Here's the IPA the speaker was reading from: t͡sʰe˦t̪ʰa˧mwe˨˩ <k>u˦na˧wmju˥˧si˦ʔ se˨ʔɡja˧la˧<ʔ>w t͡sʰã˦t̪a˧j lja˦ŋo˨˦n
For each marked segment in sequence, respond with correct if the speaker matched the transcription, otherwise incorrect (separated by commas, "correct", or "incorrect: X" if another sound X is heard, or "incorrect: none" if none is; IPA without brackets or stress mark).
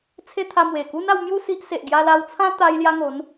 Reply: correct, incorrect: none